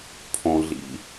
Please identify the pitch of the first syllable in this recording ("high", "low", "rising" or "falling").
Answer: low